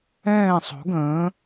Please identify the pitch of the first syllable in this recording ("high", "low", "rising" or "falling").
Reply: falling